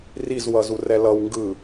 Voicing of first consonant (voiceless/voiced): voiced